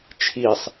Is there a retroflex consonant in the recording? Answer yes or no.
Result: no